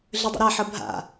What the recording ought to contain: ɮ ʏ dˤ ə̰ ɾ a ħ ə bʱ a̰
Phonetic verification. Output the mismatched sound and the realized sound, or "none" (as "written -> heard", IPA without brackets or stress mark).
none